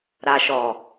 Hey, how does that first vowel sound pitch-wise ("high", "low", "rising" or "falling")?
low